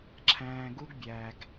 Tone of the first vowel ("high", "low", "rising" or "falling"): low